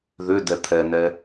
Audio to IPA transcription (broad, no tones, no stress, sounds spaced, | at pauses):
ð ʏ d ɛ t̪ʰ ɛ n ɛ